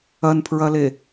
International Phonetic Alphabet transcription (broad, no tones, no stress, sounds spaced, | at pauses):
ɐ n pʰ ɹ ɐ l e